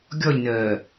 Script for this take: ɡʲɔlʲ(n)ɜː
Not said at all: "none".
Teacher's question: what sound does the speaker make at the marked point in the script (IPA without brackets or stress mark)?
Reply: n